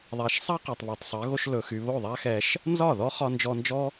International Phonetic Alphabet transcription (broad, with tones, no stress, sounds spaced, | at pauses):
ðˤ a˧ ʃ sˤ a˦ q y˨ tˤ β ɒ˨ tˤ sˤ ɜ˨˦ ɣ o˧ ʃ l ɵ˨ x y˨ β o˦˨ ðˤ a˦ x ɛ˧ ʃ | n z ɒ˦˨ ð ɔ˦ χ ɒ˧ n d͡ʒ ɔ˧ n d͡ʒ ɔ˦